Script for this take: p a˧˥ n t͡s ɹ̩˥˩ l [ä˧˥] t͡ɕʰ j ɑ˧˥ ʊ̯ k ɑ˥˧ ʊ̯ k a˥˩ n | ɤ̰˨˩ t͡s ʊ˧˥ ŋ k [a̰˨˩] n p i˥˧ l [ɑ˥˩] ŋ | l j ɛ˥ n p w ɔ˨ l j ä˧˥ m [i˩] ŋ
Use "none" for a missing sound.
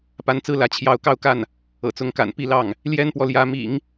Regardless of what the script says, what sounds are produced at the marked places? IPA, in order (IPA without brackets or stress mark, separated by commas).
ä˧˥, a̰˨˩, ɑ˥˩, ḭ˨˩˦